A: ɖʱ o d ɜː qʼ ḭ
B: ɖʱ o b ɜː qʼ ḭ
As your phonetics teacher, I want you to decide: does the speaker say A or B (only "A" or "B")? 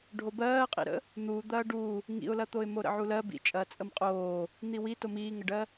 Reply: B